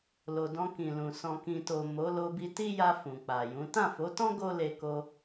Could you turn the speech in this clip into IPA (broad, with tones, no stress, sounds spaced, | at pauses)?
l o˨ d ɔ̃˧ k ĩ˨ l ũ˨ s ɔ̃˨ k ĩ˨ t o˨ m o˨˦ l o˧ b i˧ t i˦ j a˧ f ũ˨ k͡p a˨ j ũ˨˦ t ã˦˨ f o˨˦ t ɔ̃˦ ɡ o˦ l e˧ k o˧